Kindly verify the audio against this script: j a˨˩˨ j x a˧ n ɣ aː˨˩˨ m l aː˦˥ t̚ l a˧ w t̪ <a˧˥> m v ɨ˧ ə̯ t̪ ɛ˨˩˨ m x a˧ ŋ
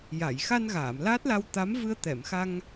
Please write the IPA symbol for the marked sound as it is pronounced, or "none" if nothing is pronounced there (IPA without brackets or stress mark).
a˧˥